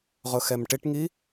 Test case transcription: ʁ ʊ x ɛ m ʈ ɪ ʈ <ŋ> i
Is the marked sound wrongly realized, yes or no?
no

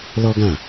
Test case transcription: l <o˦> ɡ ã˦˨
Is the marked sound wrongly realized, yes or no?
yes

